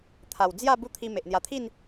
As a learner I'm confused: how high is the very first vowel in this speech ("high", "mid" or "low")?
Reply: low